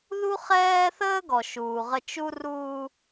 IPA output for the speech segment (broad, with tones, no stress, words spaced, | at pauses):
ðu˦χɛː˦θəː˦ ɡɔ˨ʃuː˨ʁə˦ t͡ʃu˦ruː˦